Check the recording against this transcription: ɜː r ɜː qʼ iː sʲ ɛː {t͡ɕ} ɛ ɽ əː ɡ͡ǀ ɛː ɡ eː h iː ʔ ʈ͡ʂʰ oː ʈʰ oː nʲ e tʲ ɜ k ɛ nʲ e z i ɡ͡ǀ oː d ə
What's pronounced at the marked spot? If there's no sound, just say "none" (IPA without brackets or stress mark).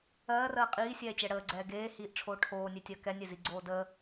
t͡ɕ